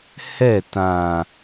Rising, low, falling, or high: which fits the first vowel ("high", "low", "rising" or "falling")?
falling